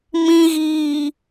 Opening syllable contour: low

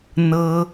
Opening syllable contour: high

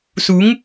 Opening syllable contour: rising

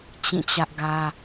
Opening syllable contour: falling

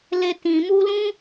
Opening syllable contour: high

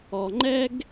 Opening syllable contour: low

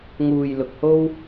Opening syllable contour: low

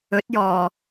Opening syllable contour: rising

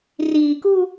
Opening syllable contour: low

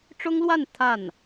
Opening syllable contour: high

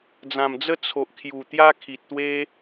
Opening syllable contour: low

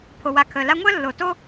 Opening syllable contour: low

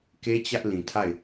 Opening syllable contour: high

